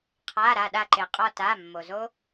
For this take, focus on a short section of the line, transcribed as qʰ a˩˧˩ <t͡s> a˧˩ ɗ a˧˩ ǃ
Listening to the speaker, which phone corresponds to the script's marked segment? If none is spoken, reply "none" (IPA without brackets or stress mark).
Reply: ɾ